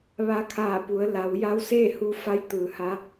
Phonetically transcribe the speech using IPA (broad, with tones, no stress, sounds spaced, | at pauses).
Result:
ʋ a˧ kʰ aː˧˩ p u˩˧ ə̯ l a˩˧ w j a˧˥ w s eː˥˨ h u˧ f a˧ j t̪ ɯː˩˧ h a˧˥